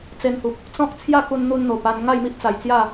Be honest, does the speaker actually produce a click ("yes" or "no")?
no